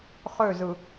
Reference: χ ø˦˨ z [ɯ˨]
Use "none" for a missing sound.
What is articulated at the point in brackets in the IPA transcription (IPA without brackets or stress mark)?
ɯ˨